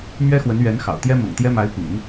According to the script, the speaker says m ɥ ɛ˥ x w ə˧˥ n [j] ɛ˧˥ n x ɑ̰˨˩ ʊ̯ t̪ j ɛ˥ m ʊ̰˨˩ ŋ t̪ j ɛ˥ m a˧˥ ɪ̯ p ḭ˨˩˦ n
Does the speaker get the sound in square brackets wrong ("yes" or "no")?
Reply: yes